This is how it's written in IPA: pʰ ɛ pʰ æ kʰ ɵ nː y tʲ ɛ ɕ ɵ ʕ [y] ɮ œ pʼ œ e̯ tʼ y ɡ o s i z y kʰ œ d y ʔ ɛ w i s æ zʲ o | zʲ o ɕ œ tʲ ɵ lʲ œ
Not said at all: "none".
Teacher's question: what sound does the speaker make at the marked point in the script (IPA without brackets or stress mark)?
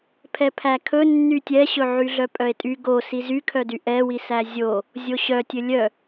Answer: y